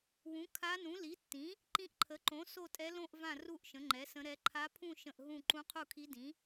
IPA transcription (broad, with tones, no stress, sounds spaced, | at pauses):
w ũ˩˥ kʰ a˧˥ n ũ˩˥ l i˩˥ tː ĩ˩˥ | ǃ ĩ˧˥ ʔ ǃʰ ə˩˥ ǃ õ˩˥ s o˥˨ tʼ ɛ˧˥ l õ˥˨ ʔ v ã˥˨ r u˥˨ ʔ ʃ ə̃˩˥ ŋ͡ǃ ɛ˩˥ s ə̃˧˥ ɾ ɛ˧˥ ǃʰ a˧˥ pʰ ũ˥˨ ʃ ə̃˥˨ ʔ ɦ ũ˥˨ ǃ ũ˧˥ qʰ u˥˨ kʰ i˧˥ d ĩ˩˥